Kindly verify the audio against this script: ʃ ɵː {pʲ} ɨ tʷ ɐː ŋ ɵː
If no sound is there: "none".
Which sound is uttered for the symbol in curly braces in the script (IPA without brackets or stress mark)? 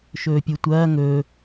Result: pʲ